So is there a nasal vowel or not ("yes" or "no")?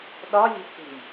no